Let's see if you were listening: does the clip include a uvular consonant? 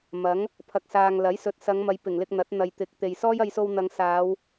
no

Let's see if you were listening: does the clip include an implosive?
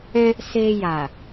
no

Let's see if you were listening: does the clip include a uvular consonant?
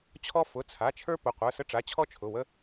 yes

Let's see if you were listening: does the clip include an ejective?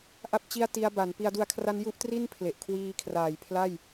no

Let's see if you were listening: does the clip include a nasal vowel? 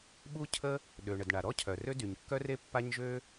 no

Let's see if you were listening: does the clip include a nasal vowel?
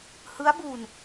no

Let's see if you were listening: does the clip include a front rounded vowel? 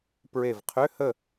yes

